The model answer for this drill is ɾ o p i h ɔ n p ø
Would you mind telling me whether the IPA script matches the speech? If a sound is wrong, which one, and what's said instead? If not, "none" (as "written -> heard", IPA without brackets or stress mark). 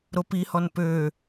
none